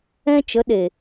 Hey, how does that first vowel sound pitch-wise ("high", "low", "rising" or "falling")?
high